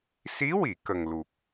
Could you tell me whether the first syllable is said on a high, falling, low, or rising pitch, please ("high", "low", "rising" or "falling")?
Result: rising